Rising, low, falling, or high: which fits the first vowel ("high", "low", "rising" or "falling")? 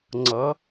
rising